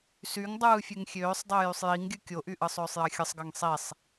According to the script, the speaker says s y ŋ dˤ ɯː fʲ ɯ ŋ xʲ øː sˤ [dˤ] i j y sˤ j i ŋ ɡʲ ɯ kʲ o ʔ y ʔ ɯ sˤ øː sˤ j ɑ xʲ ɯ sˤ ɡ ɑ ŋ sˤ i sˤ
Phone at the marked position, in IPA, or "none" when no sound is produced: dˤ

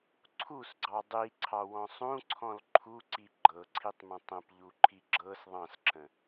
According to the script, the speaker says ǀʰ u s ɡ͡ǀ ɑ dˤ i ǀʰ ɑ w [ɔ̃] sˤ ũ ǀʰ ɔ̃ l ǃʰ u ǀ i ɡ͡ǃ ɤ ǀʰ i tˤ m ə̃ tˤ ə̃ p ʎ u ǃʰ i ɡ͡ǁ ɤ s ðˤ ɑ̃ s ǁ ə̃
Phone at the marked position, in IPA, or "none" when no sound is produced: ɔ̃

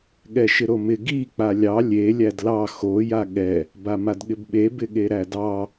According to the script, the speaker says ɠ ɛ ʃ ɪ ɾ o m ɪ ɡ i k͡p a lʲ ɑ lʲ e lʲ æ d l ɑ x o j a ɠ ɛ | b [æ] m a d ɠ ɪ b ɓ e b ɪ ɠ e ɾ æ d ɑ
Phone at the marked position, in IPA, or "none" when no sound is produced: a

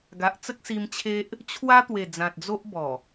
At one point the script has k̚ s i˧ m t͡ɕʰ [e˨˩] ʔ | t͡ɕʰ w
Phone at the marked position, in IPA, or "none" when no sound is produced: e˦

